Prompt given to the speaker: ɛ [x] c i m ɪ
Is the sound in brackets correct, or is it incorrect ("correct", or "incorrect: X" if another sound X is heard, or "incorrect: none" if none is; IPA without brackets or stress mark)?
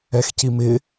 correct